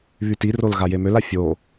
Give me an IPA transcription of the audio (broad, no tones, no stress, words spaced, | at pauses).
βytirol ɣajemøla fʲo